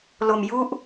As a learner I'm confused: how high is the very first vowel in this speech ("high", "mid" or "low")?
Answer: mid